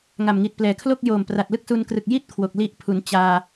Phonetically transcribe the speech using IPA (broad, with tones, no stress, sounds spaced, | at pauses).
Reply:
ŋ a˨˩ m ŋ i˨˩ t̚ p l ɛː˩˦ kʰ l o˥˩ k̚ j oː˨˩ m p r a˨˩ t̚ l ɯ˥˩ k̚ s u˧ n k r ɯ˨˩ k̚ j i˥˩ t̚ kʰ w o˨˩ k̚ l i˦˥ ʔ pʰ u˩˦ n t͡ɕ aː˧